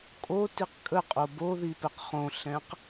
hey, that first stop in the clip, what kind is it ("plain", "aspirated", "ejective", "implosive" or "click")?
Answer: ejective